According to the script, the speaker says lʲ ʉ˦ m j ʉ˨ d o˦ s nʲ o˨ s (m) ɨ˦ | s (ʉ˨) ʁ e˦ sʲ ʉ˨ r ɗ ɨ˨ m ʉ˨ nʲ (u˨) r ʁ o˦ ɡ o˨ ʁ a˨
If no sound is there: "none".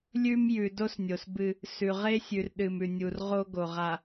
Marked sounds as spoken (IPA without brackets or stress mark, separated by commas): b, ʉ˨, u˨